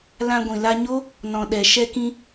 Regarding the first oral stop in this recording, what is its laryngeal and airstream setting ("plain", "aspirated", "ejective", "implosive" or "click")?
plain